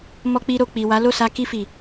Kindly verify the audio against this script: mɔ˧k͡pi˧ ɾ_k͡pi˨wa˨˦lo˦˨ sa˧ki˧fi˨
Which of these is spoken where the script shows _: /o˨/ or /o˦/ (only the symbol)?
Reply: o˨